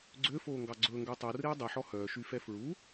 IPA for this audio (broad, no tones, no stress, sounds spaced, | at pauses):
ɡ͡ǀ ø f oː ŋ ɡ ɑ ɡ͡ǀ ɵː ŋ ɡ œ tˤ o r eː dˤ e ħ ɔ h œː ʃ y f ɛ f ɹ u